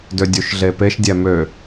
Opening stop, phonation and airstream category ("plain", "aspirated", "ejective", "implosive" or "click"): plain